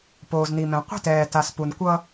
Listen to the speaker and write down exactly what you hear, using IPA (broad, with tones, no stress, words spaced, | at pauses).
poː˨zn̪i˨mɛ̃˨ qʷi̤˦tɛː˨ ta˨s pu˨nkʷʌ˦